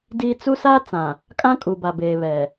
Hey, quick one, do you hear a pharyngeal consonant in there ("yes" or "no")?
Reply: no